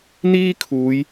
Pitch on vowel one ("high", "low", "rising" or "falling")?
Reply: high